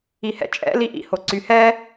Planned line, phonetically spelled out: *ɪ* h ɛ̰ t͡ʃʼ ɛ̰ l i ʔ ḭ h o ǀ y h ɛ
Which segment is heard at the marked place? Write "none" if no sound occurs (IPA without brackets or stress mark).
i